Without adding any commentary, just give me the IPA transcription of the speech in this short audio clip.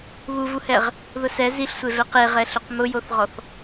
β u v u h ɛ ʁ | ð ʊ s ɛ z i ɬ sʷ e v ɛ q e ʁ ɛ ɬ ʊ q m ʊ j o θ ʁ ɔ θ

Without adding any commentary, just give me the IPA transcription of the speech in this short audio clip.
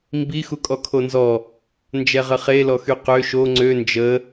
m b i x u kʼ ɔ kʰ o n z ɔ | n d͡ʒ ɛ ʁ ə χ e l ɔ x y q ø ʃ o ŋ͡ǀ ø n d͡ʒ ə

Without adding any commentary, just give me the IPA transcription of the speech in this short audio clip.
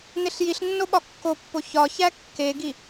n e ɬ j i ɬ nː o ɓ ɒ kː o pː o ç ɒ ç æ kː e ɡ i

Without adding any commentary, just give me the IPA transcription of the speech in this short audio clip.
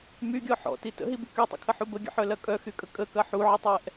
m y ɡʲ ɔ ħ ɔ̰ t i t ə̰ ɦ i b y k y tˤ ə̰ kʰ ə ħ u b ə ɡʲ ə̰ ħ œ l ɐ kʼ œ x y kʼ ə kʼ ə k ɐ ħ u ʕ ə tˤ ɛ ʔ

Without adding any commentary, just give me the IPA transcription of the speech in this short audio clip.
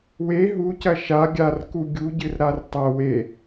w e ɦ u c ɐ ʃ a ɡʲ a r k u ɡʲ u ɟ ɨ r ɾ a r tˤ ɐ w e

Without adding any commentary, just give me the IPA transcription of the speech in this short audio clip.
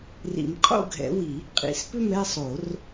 r ḭ˨˩˦ m qʼ o̰˥˧ ɡʱ ɛ̰˨˦ w i˨˩˦ | qʼ ḭ˨˩˦ s p ʏ˥˧ m ɾ ɛ˥˧ sˤ o˨˩˦ r

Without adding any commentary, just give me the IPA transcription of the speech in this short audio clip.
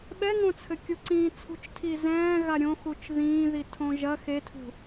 ɓ ɛ ŋ õ t͡sʰ ɘ kʲ u ǀ ĩː t͡sʰ ṳ t͡ʃ tʰ i z ɛ̃ː ɣ a ɾʲ õ x u t͡ʃ ð ĩː ð i tʰ õ ʒ ɐ x e tʰ ṳ

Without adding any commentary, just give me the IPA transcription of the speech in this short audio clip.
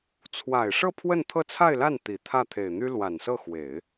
t͡sʰ w a˨˩ ɪ̯ ʂ ɤ˥˧ pʰ w ə˥˧ n t̪ʰ ɤ˥˧ t͡sʰ a˥˧ ɪ̯ l a˥˩ n t̪ i˨˩ t̪ʰ ä˥˩ t̪ʰ e˨˩ ɪ̯ n̪ y˥ l w a˨˩ n s ɤ˥˩ x w e˨˩˦ ɪ̯

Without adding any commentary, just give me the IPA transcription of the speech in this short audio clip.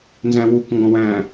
n z æ̃ w u k ŋ ɡ ɔ̃ w æ̃

